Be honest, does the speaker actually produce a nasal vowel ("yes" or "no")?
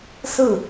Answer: no